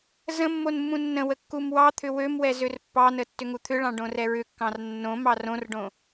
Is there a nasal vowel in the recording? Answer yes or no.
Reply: yes